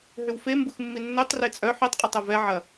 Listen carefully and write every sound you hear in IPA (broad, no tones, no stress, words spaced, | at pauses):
ɦʏwfe mbuxmːinːøtˤ ret͡sʼœ ħitˤqʼetˤœ vɛʕɐ